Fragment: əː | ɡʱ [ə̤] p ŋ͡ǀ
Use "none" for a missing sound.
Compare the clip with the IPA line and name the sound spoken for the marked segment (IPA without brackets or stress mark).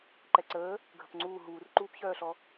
ə̤